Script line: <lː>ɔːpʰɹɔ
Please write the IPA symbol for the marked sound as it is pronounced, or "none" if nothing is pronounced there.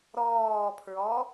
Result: ɾ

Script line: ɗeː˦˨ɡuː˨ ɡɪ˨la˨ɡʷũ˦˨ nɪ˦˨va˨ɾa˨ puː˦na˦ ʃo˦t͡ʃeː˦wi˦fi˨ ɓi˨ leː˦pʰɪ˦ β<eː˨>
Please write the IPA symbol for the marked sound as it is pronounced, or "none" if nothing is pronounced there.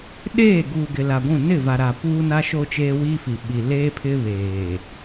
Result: eː˨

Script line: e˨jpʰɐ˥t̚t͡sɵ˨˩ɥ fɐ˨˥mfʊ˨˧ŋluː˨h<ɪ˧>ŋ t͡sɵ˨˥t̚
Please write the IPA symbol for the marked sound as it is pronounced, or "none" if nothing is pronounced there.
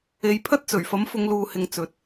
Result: ɪ˨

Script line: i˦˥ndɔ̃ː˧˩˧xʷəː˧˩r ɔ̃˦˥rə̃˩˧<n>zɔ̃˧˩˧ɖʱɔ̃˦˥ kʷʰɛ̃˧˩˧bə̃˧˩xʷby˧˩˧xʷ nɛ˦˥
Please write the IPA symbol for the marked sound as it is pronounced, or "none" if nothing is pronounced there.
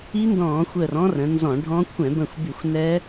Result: n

